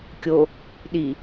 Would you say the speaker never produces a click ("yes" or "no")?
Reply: yes